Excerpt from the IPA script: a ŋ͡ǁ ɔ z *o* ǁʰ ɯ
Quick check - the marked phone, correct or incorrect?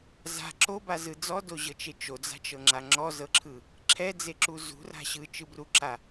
incorrect